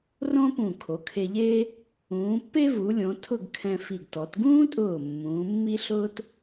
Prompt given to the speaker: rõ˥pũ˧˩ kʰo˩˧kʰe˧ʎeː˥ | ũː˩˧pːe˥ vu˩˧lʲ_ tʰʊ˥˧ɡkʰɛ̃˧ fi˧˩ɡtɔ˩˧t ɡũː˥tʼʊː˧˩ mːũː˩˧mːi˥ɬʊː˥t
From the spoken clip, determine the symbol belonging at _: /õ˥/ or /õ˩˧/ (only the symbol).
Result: õ˩˧